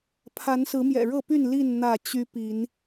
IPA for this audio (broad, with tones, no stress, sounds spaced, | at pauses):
pʰ a˨˦ n s ɹ̩˨˦ m j ɛ̰˨˩ ɻ ɤ˥˨ p y˥˨ n l i˥˨ n n̪ ä˥˨ t͡ɕ y˦ p i˨˦ n